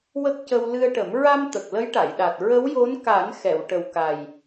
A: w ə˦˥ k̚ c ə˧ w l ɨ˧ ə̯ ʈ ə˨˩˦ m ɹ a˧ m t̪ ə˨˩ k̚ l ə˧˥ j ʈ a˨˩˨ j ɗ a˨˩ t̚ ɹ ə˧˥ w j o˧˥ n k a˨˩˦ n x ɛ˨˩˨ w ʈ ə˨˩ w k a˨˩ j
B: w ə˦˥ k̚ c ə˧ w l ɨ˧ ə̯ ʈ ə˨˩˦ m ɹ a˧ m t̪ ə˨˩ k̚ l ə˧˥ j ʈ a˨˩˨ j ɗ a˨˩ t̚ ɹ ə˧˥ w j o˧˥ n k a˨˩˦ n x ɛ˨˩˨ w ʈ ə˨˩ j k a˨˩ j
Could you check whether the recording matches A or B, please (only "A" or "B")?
A